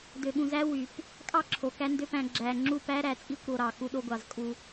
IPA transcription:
d ø˨ ɠ ũ˨ z æ˦ w y˨ p | kʼ ɑ˦ ǁʰ o˨ k æ˦ n d ø˦ p æ̃˧ ɡ͡ǁ æ˧ ŋ͡ǁ u˦˨ p æ˦ ɾ æ˨ t͡sʼ i˦ kʷ ɾ o˧ ɾ ɑ˨ k u˧ ɗ o˧ ɡʷ ɑ˨ z kʼ u˧

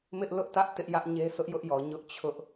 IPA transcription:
m ɪ˦ ʔ l ʊ˦ ʔ t ä˦ ʔ t ɪ˦ ʔ j ä˦ ʔ ɲ e˦ s ʊ˦ ʔ j ʊ˦ ʔ j ɔ˨ ɲ ʊ˦ ʔ t͡ɕʰ ʊ˦ ʔ

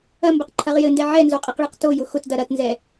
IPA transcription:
ɐ m b ɘ q ǃʰ ɐ ʁ j ɘ n d ɛ ʕ ɛ n z o qʼ i q ɭ i q t o j ʊ x ʊ t d ɐ ɾ ɐ t n z ɛ

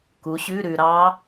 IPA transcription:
k u˨˥ ɕ ʉ˧˥˧ ɾ ʉ˧ ɾ ɑ˦˥

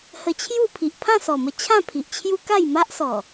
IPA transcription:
h ə˧ t͡ɕʰ j u˥˧ pʰ i˨ ʔ pʰ ã˥˧ s ɔ˨˩ m ə˧ t͡ɕʰ ã˥˧ pʰ i˨ ʔ t͡ɕʰ j u˦ k a˥˧ j m a˦ ʔ s ɔ˨˩

